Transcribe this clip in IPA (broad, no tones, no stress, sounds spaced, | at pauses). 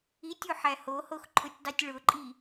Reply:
i tʲ u ħ æ h o h o x ǃʰ ʊ tʲ dˤ i tʲ ɭ ʊ ǃʼ i